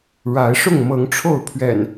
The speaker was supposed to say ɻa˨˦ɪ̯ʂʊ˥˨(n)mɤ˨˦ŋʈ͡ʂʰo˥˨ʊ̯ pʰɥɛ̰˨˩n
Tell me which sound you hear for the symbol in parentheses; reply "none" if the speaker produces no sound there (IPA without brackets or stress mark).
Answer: ŋ